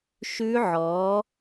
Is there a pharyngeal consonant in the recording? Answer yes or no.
yes